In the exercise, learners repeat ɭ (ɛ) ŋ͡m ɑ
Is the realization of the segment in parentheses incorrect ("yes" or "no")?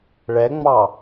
no